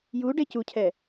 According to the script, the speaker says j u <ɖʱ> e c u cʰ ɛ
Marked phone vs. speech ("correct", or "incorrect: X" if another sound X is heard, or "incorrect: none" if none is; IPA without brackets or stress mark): incorrect: ɖ